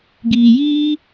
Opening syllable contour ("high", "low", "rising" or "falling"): low